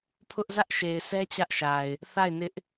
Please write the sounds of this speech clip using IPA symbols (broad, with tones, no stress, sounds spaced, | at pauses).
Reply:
pʰ ʊ˦ ʔ z ä˦ ʔ ʃ e˨ ɪ̯ s ɛ˦ t͡ɕ ä˦ ʔ ʃ a˨ ɪ̯ | θ a˦˨ ɪ̯ n ɪ˦ ʔ